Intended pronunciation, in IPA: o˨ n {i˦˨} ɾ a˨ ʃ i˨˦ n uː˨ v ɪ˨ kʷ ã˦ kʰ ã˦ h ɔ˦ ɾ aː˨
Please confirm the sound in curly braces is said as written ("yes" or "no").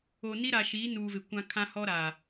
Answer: no